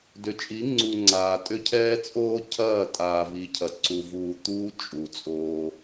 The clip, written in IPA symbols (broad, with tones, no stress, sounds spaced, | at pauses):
d ʏ˨ t͡ʃʼ i˨˦ ŋ͡ǀ u˨ ŋ͡ǀ aː˨ tʼ ʏ˦ cʰ ɛː˦ t͡sʼ oː˦ cʰ ɐː˦˨ tʼ aː˨ v i˨ cʰ ɐ˨ ǀ u˨ v uː˨ t̪ uː˦ t͡ʃʼ u˨ t͡sʼ oː˦